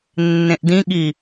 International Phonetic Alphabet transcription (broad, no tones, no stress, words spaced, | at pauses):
nːẽʔdĩɠi